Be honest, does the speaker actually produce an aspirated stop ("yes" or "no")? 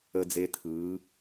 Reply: yes